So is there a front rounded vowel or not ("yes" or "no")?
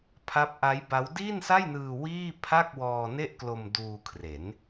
no